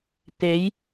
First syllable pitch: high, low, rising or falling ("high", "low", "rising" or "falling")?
rising